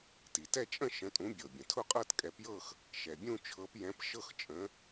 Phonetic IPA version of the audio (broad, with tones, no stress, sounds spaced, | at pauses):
t i˩ t ɛ˥˧ t͡ʃʼ ə̃˥˧ ʃ ə̃˨˦ tʼ ũ˨˦ bʲ ɤ˩ bʲ ə̃˩ tʰ ʊ˥˧ qʼ ɤ˥˧ t kʼ ɛ˨˦ p j ɤ˥˧ x | ʃ ɛ˩ bʲ ũ˥˧ t͡ʃʰ ɤ˨˦ p j ɛ̃˨˦ p ʃ ɤ˥˧ x t͡ʃʼ ə̃˨˦